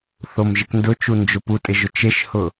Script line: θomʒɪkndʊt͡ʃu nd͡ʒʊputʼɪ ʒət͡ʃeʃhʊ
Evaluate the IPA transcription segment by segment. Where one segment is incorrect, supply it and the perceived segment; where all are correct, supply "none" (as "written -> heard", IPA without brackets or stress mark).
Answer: ə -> ʊ